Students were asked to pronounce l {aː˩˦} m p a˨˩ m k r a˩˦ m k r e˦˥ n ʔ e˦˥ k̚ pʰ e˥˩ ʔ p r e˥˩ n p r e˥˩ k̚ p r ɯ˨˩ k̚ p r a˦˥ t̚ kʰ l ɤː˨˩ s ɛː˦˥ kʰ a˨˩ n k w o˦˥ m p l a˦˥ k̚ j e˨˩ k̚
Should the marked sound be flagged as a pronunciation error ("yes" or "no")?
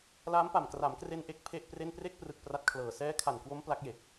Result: yes